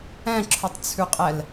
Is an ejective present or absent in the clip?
present